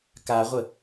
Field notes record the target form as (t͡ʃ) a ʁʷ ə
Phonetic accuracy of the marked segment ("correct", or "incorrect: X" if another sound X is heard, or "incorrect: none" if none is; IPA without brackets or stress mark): incorrect: k